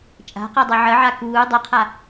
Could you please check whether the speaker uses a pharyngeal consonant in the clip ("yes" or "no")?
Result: yes